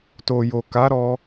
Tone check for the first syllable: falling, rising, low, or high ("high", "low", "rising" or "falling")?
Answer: low